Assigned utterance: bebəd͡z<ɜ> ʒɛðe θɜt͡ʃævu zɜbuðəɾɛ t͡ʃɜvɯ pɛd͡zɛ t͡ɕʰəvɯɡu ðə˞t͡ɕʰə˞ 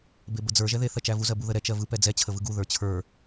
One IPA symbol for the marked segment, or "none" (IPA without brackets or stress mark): ə˞